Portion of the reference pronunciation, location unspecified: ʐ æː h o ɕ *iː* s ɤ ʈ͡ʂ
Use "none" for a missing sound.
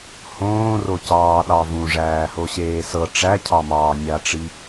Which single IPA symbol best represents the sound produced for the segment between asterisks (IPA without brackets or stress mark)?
eː